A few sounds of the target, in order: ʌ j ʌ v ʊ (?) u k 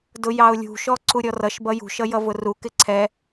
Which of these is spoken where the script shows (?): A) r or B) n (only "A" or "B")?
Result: A